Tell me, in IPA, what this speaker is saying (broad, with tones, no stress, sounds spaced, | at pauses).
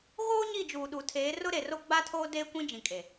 ɣ oː˦ ɲ i˦˨ d͡ʒ uː˨ ɗ u˨ tʰ eː˨˦ r ʊ˦ ɾ e˨ r o˦ ɡ͡b a˦ tʰ oː˦ d eː˦ kʷ ĩ˦ d͡ʒ ĩ˨ kʼ e˨